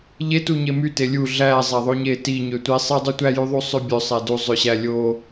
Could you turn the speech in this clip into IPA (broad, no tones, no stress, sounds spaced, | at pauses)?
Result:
ʎ e t u ɲ e m y t e lʲ u ɮ æ zˤ æ ðˤ o ɲ e t i ɲ ø tʷ i sˤ i dˤ u tʷ æ j y ðˤ u sˤ ø bʲ ø sˤ æ d u zˤ ø ɕ æ lʲ o